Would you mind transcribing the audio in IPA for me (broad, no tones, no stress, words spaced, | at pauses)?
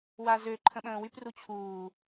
wazø ǃʰə̃ɓə̃ːwypru t͡ɕʰuː